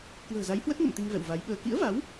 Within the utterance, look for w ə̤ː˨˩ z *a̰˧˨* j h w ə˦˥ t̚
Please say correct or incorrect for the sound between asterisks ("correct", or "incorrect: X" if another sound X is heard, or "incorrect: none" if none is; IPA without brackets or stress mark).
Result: incorrect: a˨˦